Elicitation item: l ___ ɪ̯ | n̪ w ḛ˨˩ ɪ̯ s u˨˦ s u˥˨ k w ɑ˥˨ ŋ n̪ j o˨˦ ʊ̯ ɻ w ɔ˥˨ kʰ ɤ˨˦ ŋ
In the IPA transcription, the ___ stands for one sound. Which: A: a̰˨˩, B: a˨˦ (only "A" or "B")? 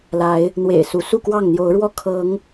B